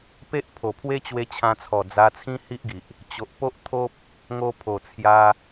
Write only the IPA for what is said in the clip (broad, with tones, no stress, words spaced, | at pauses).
pe˦ʔ pʰo˨˩pʰwe˦t͡ɕwe˧ t͡ɕʰã˧t͡sʰɔ˨˩ d͡za˧t͡sʰĩ˦hi˦ʔɡi˨ʔ | t͡ɕo˨ʔpo˦ʔt̪ʰo˦p̚ | ŋo˧ pʰo˨˩t͡sʰja˧